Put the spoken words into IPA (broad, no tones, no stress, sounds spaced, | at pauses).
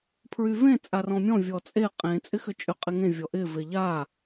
pʰ ɹ y v ẽ t͡sʼ a r ɔ̃ mʲ ɔ̃ vʲ ɔ t͡sʼ e qʼ ẽ t͡sʼ ɪ x ʏ t͡ʃʼ ʏ qʼ ɪ ŋ ẽ vʲ ɔ ʔ ɪ v e ʎ a